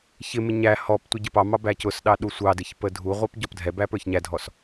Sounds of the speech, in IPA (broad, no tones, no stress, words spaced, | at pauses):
çɪmɪ ɲæ hɔptʷɪ ɟəpɑmɑ bæcʊsɗɑ ɗusʷɑdɪç pədʱuʁʷɛp ɟɔpdʱɛbæ pə˞çɲædʱɔs